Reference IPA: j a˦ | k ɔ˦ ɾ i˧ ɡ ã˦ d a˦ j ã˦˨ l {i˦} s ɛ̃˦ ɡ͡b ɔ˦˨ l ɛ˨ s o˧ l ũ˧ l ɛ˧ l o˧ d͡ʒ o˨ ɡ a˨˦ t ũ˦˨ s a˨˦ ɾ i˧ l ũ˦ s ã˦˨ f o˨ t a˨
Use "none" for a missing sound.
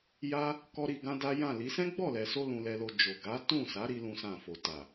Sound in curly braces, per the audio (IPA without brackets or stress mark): i˨˦